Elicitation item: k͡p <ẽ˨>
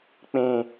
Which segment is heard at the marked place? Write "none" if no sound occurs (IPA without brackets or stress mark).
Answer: ẽ˨